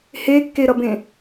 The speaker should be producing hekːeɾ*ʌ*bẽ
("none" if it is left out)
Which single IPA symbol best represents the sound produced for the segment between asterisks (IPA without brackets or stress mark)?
ʌ